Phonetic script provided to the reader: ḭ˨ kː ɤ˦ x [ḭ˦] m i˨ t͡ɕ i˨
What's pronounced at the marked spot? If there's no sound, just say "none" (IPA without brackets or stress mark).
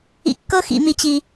ḭ˨